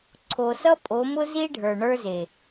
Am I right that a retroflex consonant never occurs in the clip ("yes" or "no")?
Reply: no